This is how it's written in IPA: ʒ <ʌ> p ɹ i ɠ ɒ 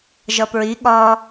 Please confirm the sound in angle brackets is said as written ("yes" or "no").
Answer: yes